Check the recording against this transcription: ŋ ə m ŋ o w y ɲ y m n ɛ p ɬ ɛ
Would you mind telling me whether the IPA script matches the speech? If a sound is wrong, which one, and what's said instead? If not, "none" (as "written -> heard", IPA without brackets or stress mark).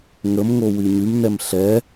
p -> m